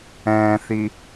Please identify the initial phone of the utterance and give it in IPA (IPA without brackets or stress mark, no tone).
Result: ɛ̃ː